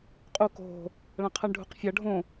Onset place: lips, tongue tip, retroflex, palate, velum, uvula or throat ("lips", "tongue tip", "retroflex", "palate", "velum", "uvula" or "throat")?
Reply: uvula